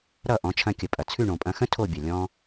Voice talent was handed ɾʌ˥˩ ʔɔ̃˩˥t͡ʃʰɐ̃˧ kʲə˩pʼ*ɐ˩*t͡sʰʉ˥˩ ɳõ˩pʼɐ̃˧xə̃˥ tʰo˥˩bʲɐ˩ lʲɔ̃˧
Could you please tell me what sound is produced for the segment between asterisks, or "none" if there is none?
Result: ɐ˩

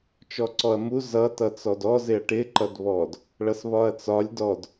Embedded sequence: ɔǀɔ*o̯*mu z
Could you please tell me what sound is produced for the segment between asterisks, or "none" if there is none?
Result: ɐ̯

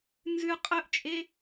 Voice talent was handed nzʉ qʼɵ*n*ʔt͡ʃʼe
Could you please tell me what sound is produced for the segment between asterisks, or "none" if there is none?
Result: none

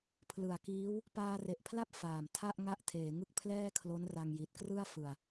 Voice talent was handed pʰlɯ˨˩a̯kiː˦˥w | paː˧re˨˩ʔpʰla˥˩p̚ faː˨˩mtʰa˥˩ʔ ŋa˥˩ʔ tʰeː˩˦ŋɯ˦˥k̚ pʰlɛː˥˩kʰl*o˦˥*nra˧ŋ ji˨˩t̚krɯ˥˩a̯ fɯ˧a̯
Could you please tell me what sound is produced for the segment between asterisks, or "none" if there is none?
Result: o˦˥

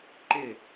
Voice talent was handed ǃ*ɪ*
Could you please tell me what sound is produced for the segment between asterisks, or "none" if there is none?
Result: ɪ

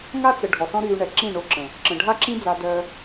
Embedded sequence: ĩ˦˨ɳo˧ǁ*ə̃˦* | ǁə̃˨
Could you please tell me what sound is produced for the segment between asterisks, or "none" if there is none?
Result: ə̃˨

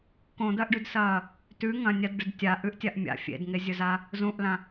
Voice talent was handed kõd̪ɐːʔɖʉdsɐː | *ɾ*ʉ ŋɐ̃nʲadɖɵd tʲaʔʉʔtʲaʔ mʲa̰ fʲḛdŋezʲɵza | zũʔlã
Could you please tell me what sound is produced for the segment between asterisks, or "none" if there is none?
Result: t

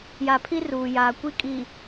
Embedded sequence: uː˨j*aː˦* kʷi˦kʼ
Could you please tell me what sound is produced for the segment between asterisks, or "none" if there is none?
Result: aː˨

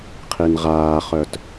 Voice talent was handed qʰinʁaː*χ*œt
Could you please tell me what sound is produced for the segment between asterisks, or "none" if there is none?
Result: χ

